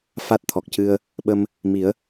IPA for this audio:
f a˦˥ t̚ t̪ʰ ɔ˨˩ k̚ c ɨ˧ ə̯ | ɓ ə˧ m | m i˨˩˦ ə̯

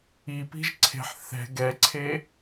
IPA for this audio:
i p i̤ ʒ ǀʰ e̤ ħ θ ɛ̤ ɡ ɛ ǀʰ e

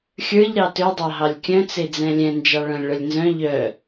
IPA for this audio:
xʲ ə˞ ʎ ɾ ɑ t ø dˤ ɑ ɦ ɑ lʲ kʲ œ̃ t͡s e d͡z ɛ̃ lʲ ɛ̃ n d͡ʒ ɑ ɭ œ̃ lʲ ɭ œ lʲ n z œ̃ ʎ œ

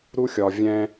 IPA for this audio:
ɾ u˦ xʲ ɒ˨ vʲ ɛ̃˦

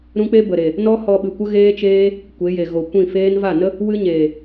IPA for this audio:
ɾ ũ˦ k͡p e˦ b ə˨ ɾ e˨ | n ɔ˦ h ɔ˧ ɓ ɨ˨ kʷ ə˦ ɣ eː˦ t͡ʃ eː˦ | kʷ e˨˦ j e˨ ɣ o˨ kʷ ĩ˦˨ f eː˦ n v a˦˨ n ə˦ | w ɨ˦ ɲ eː˨

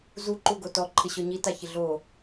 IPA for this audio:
z u ǃ u ɡ o t ɔ ǃʰ ɪ ɕ ɔ ɲ i t a ç ɪ ɮ o

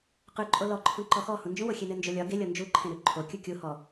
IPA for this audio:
q ʉ ǃʼ o l ɔ ǃʰ ũ ǃ ɔ x ɔ h ũ n d͡ʒ ũ w o xʲ e n ɘ n d͡ʒ o lʲ ɒ ɡ e lʲ ɔ n d͡ʒ u ǃʰ ẽ ɾ ʉ ǃʰ o kʲ u kʲ u h ɔ

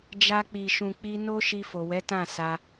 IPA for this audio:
d͡ʒ a˧ k͡p i˨ ʃ ũ˨ k͡p i˧ n o˦ ʃ i˧ f o˨ w ɛ˨˦ t ã˦˨ s a˧

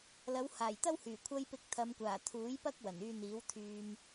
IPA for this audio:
l ɐ˨˧ w h aː˨˩ j t̪ ɐ˥ w h yː˨˩ kʷʰ ɐ˧ j p ɪ˨ k̚ t̪ʰ ɐ˨˧ m kʷ aː˨˩ t̪ʰ uː˨˥ j p ɐ˥ k̚ w ɐ˨˩ n yː˧ n̪ iː˨˥ w t̪ʰ yː˧ m

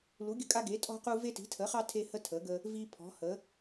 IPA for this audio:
l u˩˥ ɡʲ ə̤˦ kʼ a˦ ɡ e˩˥ tʼ ɔ̤˦ q u˦ v e˦ t i̤˩˥ tʰ ə˩˥ χ ɑ˦ tʰ e˦ h ə˦ tʰ ə˩˥ ɡ ə˦ | v i˦ pʰ ɔ̤˩˥ h ə˩˥

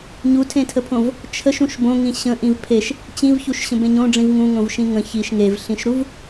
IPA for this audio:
ɲ u tʰ ẽ tʰ ə pʰ õ v | t͡ʃʰ ə ʃ ũ ʃ b õ ŋ ĩ ɕ ə̃ ʔ ĩ v pʰ e ʃ | t͡ɕ ĩ v ç u ʃ ɕ ə̃ b ẽ ɲ õ ɖ͡ʐ ĩ v ŋ ũ ŋ õ v ʃ ĩ ŋ ə̃ ç i ʃ ŋ e v ɬ ĩ ʃ ɾ u v

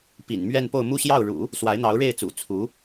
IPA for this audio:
p ḭ˨˩ n m ɥ ɛ˥˧ n p o˥˧ ʊ̯ m u˥˧ ɕ j ɑ˥˩ ʊ̯ ɻ ṵ˨˩˦ | s w a˧˥ ɪ̯ n̪ ɑ˧˥ ʊ̯ ɻ e˥˩ ɪ̯ t͡s ṵ˨˩ t͡sʰ u˧˥

